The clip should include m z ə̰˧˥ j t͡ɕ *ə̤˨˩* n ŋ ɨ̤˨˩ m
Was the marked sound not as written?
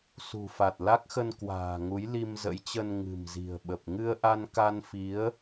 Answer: yes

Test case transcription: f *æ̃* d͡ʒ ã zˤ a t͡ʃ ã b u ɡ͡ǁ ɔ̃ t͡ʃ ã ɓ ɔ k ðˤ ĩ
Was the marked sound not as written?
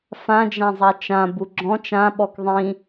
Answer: yes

